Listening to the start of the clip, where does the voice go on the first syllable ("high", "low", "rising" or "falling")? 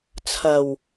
low